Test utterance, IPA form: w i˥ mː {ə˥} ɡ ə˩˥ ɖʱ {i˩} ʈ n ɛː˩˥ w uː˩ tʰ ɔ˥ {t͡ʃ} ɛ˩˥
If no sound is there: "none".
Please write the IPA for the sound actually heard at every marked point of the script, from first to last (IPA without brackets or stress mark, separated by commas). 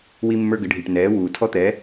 ə˞˥, i˩, t̪